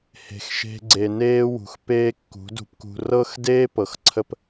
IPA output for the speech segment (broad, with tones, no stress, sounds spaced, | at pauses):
h e̤˧ x ʃ e̤˦ ɡ͡ǀ e˧ n eː˦ w ṳ˨ x p eː˦ kː ṳ˨˦ d ṳ˧ p k ṳ˧ r ɤ˦ x d eː˦ p ɤ˨ x ǀʰ ə˧ p